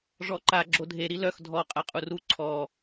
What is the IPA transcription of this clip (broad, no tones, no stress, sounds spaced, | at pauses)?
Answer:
ʐ ɔ ǃ a ɡ͡ǁ o dʱ e ɾ i l œ x dʱ ɔ qʼ a qʼ u r u ǀʰ ɔ